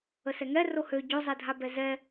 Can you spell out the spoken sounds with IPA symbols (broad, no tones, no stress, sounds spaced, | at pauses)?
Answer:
ə s ɛ ŋ ɛ r o h ø ɟ o zˤ ɛ dʱ a b ɛ z ɛ